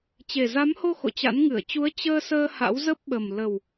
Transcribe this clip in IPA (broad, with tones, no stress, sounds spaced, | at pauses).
t͡ɕ e˨˩ z a˨˦ m h o˧ x o̰˧˨ t͡ɕ a̰˧˥ n ŋ ɨ˧˩ ə̯ t͡ɕ u˨˦ ə̯ t͡ɕ əː˧ s əː˧ h a̰˧˥ w z ə˦˥ p̚ ɓ ə˨˩ m l ə˨˩ w